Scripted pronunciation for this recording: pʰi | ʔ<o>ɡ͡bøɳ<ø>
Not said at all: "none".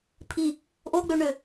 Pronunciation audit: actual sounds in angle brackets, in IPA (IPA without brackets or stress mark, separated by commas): o, ø